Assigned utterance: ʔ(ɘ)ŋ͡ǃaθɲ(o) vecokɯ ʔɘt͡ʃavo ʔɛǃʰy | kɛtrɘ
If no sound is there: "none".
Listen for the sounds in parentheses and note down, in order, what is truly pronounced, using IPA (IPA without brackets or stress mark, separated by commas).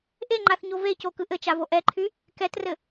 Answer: e, o